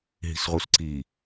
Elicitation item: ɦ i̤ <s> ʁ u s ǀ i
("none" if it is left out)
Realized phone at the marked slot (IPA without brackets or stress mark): s